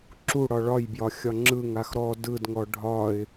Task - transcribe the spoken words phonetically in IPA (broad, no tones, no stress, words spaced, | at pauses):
ǁu ɽɒɭɒjbjɒ xʲɒŋ͡ǁɯŋax ɾɔ dɯdŋɔ ɖʱɒɪ̯